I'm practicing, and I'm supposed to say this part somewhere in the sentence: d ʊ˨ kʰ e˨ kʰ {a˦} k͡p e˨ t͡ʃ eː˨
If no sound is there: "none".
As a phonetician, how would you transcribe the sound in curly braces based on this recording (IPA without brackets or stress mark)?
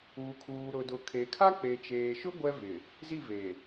a˦